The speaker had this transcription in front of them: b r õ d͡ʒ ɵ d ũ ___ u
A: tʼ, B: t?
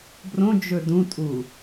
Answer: A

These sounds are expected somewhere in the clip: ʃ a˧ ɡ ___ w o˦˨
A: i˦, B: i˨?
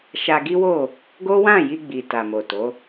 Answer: A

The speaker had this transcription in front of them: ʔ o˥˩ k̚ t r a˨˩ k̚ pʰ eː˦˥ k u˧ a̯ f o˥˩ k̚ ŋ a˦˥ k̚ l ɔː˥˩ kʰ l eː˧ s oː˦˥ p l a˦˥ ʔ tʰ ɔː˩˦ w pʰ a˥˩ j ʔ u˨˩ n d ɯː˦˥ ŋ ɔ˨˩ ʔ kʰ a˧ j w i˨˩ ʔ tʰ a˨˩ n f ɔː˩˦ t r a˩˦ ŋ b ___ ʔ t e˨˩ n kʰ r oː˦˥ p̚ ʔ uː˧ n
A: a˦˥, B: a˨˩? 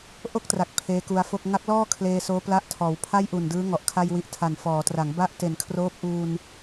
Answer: A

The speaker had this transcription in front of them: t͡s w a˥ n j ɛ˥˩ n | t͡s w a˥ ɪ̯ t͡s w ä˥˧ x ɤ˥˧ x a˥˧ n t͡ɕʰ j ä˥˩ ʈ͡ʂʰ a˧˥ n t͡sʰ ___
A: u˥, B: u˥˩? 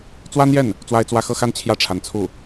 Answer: B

